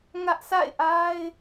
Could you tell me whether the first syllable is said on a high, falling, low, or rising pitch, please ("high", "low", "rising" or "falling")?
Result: high